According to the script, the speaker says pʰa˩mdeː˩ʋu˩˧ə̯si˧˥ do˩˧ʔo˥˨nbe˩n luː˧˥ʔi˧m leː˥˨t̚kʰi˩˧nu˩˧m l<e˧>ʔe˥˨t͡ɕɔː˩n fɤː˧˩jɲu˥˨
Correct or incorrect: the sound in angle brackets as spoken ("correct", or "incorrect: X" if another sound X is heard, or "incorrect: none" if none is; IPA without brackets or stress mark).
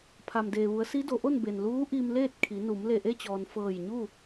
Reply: incorrect: e˧˩